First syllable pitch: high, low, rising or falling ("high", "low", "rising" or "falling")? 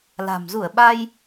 low